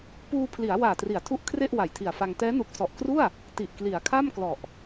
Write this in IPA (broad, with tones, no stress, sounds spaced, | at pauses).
p uː˧ pʰ l i˩˦ a̯ w aː˨˩ t r i˩˦ a̯ tʰ u˦˥ ʔ kʰ r e˥˩ ʔ w a˨˩ j tʰ i˨˩ a̯ f a˧ ŋ t ɛː˦˥ n u˨˩ k̚ s ɔ˨˩ ʔ k r u˥˩ a̯ | t i˨˩ ʔ k l i˩˦ a̯ kʰ a˥˩ m k l ɔ˨˩ ʔ